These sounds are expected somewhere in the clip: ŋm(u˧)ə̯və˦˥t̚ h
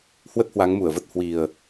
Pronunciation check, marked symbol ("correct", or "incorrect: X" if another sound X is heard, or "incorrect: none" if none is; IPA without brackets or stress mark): incorrect: u˧˩